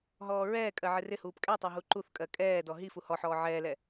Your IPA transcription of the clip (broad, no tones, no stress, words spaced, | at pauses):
ɦɔːɹɛːkʼɜ ʕɪrɪhuːp kʼɛtˤɜ ɦuǃuθkʼɜ kʼɛːdɔ ɦifu hɔħɔː ʕɛːlɛ